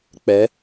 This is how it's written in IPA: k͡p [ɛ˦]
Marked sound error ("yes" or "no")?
yes